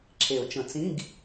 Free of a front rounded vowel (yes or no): yes